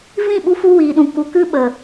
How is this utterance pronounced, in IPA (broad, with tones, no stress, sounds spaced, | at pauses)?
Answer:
v ĩ˦˨ ɓ u˧ f u˧ w iː˨ ɗ ũ˨ k u˨ k ɨ˦ ɓ ə˨